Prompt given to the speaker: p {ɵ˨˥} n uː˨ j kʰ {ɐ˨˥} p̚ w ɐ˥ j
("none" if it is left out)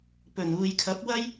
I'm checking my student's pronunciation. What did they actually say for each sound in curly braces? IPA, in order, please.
ɵ˨˩, ɐ˨˥

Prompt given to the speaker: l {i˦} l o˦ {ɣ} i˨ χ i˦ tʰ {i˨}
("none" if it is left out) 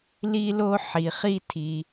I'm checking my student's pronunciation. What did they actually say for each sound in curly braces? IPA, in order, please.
i˦, ħ, i˧

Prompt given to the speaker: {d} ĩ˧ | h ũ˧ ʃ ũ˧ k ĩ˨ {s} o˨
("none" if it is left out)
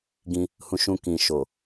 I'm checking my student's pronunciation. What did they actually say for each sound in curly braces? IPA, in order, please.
ɡ, ʃ

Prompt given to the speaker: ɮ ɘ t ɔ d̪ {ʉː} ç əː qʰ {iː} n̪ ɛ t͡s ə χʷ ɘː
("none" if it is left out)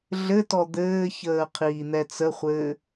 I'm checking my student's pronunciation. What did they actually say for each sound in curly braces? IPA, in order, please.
ɘː, iː

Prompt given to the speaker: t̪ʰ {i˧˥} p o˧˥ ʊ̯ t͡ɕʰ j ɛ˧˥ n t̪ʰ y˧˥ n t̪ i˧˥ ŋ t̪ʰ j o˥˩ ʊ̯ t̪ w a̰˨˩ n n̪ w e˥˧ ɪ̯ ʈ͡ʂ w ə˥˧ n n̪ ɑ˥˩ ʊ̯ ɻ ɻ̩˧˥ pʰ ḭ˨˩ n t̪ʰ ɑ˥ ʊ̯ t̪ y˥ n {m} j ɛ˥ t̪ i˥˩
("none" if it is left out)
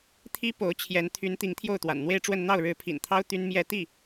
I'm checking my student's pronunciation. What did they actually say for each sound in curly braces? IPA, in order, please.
i˥, m

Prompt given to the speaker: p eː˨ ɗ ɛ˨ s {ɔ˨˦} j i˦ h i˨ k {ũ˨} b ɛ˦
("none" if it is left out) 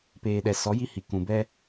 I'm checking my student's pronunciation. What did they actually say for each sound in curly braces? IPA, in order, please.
ɔ˨˦, ũ˨

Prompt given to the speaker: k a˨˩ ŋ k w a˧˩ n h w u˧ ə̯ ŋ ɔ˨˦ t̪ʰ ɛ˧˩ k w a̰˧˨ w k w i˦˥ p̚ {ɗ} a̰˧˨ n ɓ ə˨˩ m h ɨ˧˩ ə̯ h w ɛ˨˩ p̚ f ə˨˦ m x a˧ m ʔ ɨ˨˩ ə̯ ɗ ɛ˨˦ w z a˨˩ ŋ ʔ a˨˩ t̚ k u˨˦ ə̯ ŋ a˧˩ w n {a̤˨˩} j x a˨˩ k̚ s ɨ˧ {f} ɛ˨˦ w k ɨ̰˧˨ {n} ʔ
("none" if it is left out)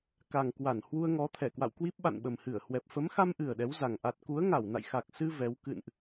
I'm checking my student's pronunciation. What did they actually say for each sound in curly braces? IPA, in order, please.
ɓ, a̰˧˨, v, n

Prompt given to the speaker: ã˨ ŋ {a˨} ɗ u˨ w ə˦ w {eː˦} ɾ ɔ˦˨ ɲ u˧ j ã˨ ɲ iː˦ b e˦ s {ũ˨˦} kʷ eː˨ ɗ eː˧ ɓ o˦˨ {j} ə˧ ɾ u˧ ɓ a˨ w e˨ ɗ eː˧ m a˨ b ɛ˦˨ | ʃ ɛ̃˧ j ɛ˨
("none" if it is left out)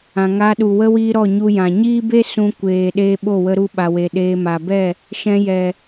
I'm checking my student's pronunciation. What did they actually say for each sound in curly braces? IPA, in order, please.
a˧, iː˦, ũ˦, w

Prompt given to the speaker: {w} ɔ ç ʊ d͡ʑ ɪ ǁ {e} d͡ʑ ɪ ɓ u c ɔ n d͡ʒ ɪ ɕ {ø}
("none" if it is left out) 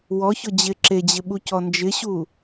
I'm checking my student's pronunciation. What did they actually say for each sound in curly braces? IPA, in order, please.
w, e, u

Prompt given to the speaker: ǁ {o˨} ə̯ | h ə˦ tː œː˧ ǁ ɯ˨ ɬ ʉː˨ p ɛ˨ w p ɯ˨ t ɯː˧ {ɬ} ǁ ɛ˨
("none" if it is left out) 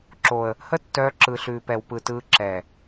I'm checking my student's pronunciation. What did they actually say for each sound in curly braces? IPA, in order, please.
o˨, none

